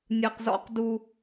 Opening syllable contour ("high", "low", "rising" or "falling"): low